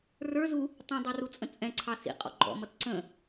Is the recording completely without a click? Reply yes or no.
no